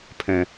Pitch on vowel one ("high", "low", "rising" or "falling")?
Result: low